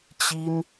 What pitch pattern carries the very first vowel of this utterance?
high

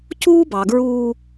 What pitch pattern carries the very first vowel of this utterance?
high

